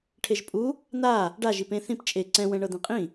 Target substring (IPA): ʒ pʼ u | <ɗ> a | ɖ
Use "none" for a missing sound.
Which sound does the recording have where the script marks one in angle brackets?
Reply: n̪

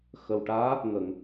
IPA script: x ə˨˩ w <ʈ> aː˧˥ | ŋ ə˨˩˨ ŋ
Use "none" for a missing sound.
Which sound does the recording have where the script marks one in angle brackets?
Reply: ʈ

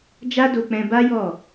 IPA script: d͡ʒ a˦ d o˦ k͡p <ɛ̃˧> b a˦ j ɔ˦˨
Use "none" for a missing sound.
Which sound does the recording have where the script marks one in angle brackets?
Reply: ɛ̃˦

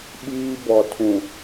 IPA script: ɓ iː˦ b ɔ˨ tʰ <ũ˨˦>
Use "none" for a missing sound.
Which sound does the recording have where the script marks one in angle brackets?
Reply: ũ˨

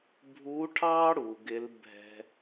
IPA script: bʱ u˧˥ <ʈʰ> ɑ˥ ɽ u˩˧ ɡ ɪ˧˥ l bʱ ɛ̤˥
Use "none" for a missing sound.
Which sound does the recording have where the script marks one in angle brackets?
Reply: ʈʰ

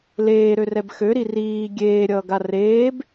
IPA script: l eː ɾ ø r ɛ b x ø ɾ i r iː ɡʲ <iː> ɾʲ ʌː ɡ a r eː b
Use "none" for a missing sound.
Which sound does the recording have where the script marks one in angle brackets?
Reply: eː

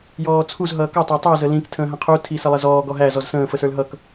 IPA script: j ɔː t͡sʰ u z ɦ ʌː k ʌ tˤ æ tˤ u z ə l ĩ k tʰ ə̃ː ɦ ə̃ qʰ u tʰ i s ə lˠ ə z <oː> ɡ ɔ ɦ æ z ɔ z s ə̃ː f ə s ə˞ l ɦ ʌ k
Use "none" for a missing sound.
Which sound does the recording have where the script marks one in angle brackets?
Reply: ɔː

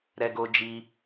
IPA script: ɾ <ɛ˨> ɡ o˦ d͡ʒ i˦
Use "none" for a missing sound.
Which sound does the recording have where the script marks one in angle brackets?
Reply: ɛ˦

